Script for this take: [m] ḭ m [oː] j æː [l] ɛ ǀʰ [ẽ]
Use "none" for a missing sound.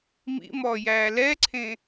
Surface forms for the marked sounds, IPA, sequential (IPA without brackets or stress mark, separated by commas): m, ɔː, l, ẽ